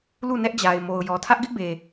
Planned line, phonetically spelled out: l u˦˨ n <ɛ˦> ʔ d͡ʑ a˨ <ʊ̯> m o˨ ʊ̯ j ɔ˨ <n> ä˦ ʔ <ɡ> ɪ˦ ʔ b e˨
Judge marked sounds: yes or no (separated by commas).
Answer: yes, no, no, yes